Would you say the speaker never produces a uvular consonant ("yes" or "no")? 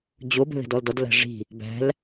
yes